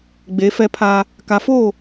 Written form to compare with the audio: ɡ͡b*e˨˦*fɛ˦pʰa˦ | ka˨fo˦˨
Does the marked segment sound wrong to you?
no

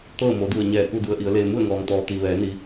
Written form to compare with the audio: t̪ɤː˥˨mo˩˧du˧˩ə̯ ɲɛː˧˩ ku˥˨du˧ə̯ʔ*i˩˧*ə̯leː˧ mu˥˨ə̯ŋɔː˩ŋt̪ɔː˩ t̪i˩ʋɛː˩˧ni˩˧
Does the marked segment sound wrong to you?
no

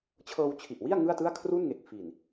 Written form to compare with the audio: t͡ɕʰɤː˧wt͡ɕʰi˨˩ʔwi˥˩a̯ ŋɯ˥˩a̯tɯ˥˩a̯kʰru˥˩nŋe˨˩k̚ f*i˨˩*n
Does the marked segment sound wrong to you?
no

